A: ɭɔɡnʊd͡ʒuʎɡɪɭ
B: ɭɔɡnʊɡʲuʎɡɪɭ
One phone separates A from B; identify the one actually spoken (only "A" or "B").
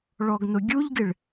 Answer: B